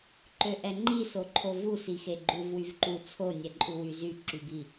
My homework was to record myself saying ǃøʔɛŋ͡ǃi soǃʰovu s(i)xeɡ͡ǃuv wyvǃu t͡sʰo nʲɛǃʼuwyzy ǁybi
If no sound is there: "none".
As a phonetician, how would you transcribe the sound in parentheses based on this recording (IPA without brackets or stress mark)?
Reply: i